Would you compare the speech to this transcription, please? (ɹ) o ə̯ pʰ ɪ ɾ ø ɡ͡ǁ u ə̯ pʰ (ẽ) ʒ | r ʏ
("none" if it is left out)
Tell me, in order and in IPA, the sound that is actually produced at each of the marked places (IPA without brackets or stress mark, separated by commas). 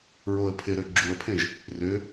ɹ, ẽ